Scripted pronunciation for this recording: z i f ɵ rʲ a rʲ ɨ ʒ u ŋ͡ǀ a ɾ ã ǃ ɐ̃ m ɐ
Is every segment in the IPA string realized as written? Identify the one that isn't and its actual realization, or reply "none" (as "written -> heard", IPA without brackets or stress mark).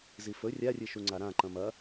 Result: ʒ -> ʃ